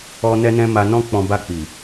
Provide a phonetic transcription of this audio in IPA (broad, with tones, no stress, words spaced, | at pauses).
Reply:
ɔ˧ nɛ˧nɛ̃˧ ma˧nɔ̃˦k͡pɔ̃˧ ba˧k͡pi˨